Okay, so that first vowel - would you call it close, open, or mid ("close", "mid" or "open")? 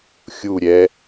close